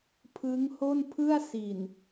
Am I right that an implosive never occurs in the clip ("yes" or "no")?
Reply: yes